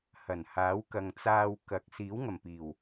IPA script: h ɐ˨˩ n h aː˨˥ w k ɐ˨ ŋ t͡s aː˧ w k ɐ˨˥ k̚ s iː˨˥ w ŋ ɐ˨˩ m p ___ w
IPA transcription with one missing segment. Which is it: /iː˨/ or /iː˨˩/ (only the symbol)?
iː˨˩